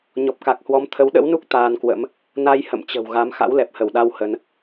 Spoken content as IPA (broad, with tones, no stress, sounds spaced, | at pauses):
ɲ ɔ˨˩ p̚ k a˨˩ k̚ h w ɔ˨˦ m t̪ʰ ə˨˦ w ɗ ə̰˧˥ w n u˦˥ k̚ t̪ aː˧ n k w ə̰˧˥ m | n a˧ j h ə̰˧˨ m t͡ɕ ə̤˨˩ w ɣ a˨˦ m x a̰˧˥ w l ɛ˨˩ p̚ h ə˧˩ w ɗ a˧ w h ə˨˦ n